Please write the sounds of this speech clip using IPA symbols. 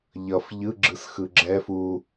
ʎ ʌ f ʎ ɯ ɡ͡ǁ ɯ s x ɯ ɡ͡ǁ ɛ f u

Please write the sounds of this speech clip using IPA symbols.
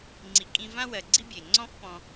ŋ͡ǀ i˨ kʼ ĩ˧ v ã˦ w ɜ˨ ɡ͡ǀ i˦ bʲ e˨ ŋ͡ǀ ɔ̃˦ f p ɔ̃˧

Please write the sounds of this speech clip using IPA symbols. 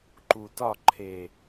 ǃ u˨ t ɒ˦˨ ǃʰ e˨

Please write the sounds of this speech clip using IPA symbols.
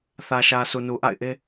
θ ä˨ ʃ ä˨ s u˨ n u˨ ʔ a̰˦˨ ɪ̯ ʔ e˦

